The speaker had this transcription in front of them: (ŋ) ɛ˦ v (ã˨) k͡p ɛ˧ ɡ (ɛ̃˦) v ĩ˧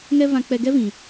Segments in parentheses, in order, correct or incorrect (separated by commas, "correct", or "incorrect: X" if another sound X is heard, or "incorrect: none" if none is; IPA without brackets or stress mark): correct, incorrect: ã˧, incorrect: ɛ˦